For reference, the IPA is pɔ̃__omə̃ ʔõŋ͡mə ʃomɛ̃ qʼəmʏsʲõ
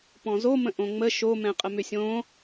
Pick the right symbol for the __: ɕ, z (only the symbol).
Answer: z